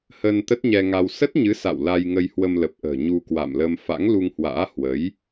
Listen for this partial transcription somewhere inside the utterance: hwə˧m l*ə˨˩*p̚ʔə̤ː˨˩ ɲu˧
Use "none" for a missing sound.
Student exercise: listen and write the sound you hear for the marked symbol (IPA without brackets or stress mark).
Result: ə˨˩